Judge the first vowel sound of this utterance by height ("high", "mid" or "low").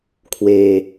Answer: mid